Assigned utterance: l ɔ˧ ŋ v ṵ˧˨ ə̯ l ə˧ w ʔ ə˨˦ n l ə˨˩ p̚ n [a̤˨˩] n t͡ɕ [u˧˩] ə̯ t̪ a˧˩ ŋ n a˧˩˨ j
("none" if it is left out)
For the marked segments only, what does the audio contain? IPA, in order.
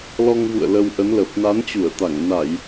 a˨˦, u˧˩

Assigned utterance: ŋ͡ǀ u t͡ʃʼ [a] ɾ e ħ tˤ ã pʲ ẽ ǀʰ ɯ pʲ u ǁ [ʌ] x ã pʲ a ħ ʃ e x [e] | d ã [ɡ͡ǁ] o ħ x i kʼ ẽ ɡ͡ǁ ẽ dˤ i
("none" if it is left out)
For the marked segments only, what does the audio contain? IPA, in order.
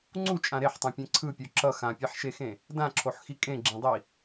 ã, ʌ, ẽ, ǁʰ

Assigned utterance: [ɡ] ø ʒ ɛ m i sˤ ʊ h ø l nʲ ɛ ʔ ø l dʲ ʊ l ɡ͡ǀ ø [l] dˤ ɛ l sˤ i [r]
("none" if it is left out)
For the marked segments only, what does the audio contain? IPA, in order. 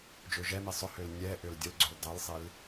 d͡ʒ, l, l

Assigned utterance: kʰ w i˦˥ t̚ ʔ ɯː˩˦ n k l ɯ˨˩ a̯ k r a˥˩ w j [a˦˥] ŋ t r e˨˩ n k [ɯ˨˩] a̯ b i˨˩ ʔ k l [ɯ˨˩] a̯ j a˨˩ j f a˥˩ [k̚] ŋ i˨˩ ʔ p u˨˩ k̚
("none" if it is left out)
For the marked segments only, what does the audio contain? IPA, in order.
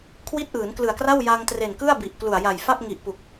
a˧, ɯ˥˩, u˨˩, p̚

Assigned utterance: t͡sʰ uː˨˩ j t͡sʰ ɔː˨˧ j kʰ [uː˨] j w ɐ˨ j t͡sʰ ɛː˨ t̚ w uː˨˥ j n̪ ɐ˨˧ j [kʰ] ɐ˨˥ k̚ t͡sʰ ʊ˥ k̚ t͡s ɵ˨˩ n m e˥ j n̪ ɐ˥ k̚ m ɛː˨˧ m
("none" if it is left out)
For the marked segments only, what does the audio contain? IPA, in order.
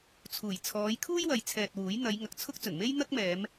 uː˥, ŋ

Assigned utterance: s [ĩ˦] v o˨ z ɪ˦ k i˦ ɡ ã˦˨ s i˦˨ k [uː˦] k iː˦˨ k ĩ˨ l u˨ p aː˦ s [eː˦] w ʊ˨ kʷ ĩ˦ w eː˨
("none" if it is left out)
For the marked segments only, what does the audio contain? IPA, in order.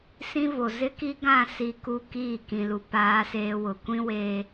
ĩ˦, u˦, eː˦

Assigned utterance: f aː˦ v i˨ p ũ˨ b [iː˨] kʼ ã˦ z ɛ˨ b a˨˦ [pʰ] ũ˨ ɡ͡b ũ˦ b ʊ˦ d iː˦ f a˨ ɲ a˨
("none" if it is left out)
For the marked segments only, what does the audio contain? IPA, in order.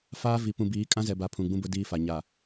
iː˨˦, pʰ

